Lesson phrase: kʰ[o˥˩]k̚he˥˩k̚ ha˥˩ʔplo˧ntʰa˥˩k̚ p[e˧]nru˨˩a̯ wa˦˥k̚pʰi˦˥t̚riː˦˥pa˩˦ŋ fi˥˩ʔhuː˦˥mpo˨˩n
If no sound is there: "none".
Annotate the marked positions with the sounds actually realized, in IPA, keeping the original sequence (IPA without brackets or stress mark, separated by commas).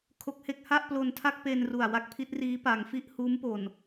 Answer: o˦˥, e˧